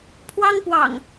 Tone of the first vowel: high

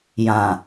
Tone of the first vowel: low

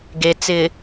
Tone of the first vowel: low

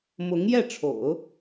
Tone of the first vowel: rising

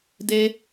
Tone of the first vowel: high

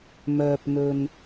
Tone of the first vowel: low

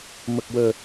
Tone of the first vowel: low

